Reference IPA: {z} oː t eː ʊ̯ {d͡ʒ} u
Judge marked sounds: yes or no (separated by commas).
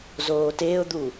yes, no